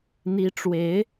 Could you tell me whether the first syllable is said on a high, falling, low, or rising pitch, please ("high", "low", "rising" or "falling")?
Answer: rising